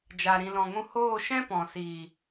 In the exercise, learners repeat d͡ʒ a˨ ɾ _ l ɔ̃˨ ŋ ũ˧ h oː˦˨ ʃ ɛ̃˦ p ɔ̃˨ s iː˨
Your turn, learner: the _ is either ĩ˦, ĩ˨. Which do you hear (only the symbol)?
ĩ˨